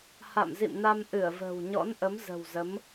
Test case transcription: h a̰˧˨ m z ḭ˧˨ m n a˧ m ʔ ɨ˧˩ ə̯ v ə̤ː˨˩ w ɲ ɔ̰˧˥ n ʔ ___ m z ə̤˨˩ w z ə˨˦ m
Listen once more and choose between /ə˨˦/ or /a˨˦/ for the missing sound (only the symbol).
ə˨˦